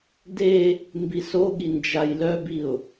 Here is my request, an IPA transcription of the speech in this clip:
d e | m b i s o ɠ i n d͡ʒ a j l œ b i ʊ̯

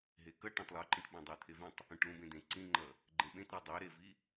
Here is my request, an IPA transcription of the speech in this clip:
ɦ e k ʌ ʈ ẽ tˤ lˠ u ǃ ĩ ʈ ɓ ẽ dˤ ə˞ t̪ʰ e v ĩ tˤ | ũ ʈ l ũ b ẽ d ẽ ǀ ĩ ŋ͡ǃ ʌ | ɡ͡ǃ ẽ ɓ ẽ t ɾ i dˤ ə˞ ɾ e v i

